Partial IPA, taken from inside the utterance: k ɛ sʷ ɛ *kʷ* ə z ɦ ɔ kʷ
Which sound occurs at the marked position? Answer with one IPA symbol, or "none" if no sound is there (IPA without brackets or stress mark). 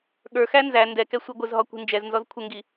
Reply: ɡʷ